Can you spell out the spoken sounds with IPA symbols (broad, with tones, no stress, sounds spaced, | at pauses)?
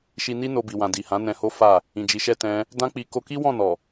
ʃ i˧ n i˦ n o˧ b i˨ w ã˨ d i˨ h ã˨˦ n ɛ̃˧ h o˦ f a˦˨ | ĩ˨ d͡ʒ i˨ ʃ ɛ˧ t ɛ̃˦ | d ã˦ k͡p i˧ k o˧ k i˦ w ɔ̃˦˨ n ɔ˨